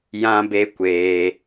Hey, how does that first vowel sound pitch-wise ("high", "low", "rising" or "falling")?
high